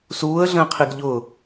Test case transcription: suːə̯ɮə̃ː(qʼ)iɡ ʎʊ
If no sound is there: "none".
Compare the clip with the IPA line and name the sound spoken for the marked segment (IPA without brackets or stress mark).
qʰ